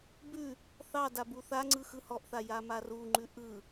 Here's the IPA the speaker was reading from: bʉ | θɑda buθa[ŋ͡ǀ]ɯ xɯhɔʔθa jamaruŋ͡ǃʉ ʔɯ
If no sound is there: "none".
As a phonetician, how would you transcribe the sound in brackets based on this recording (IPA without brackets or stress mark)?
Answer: ŋ͡ǀ